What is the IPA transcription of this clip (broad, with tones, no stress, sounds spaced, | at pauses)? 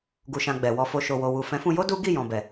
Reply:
ɡ u˨ ʃ ã˨ ɡ͡b ɛ˨ w ɔ˧ f o˧ ʃ o˨ w o˨ w u˨ f ɛ̃˨˦ f ũ˧ j o˦ d u˦ ɡ i˦˨ j ɔ̃˨ b ɛ˨